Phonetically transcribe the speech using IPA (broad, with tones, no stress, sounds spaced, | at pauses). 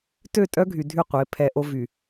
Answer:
t ø˦˨ tʼ œ˦ ɡʱ y˨ dʱ y˦˨ qʷ e˨˦ pʰ ɛ˨ ʔ o˦ v y˨